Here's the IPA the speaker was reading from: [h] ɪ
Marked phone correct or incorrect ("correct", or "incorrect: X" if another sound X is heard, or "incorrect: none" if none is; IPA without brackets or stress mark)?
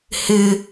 correct